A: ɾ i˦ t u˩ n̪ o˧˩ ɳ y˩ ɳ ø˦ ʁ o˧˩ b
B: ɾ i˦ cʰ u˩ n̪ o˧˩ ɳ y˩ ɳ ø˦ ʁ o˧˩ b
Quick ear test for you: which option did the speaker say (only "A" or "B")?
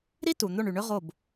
A